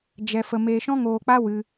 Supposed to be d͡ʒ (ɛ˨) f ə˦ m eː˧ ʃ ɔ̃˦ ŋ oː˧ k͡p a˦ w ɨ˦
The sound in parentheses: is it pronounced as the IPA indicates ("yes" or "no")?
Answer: no